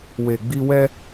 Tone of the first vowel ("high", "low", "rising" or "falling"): low